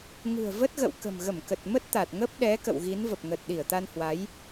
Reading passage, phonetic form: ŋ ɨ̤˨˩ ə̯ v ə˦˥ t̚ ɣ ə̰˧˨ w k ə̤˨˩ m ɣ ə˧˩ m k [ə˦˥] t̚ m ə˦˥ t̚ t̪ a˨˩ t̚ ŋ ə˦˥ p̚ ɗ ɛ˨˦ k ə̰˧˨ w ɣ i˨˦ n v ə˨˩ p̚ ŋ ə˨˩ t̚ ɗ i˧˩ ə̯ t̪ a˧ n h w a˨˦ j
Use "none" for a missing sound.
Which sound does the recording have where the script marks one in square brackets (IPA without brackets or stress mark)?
ə˨˩